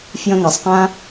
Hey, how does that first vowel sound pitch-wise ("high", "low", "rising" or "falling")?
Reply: high